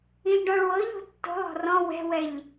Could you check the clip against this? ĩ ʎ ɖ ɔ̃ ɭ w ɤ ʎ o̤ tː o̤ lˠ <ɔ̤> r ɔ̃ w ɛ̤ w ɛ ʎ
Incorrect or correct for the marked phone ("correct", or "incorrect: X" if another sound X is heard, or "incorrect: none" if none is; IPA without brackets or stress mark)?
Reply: correct